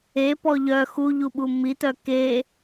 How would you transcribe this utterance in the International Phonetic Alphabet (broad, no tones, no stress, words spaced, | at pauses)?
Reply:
e pɔʎœ xuʎuɓu mit̪œ ke